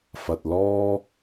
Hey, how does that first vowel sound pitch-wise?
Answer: low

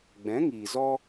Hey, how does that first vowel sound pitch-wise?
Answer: rising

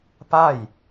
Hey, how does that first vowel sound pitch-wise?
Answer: falling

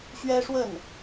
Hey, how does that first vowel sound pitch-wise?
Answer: high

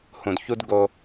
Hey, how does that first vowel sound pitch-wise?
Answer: low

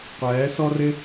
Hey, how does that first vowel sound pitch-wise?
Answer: rising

